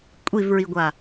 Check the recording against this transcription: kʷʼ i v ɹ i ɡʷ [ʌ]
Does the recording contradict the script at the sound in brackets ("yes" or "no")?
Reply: yes